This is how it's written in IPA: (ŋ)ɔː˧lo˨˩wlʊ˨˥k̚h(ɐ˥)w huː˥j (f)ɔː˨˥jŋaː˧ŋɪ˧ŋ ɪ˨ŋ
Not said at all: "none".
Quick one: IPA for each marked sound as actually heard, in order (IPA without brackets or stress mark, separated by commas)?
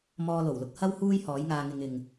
m, ɐ˥, h